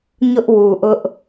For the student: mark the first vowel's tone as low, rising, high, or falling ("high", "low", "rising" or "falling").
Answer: high